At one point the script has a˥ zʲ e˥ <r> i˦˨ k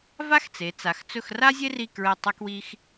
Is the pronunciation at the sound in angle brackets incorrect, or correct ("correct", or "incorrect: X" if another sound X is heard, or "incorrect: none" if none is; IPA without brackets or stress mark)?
correct